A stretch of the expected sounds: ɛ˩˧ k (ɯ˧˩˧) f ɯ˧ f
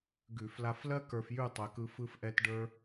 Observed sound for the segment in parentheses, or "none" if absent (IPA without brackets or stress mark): ɯ˧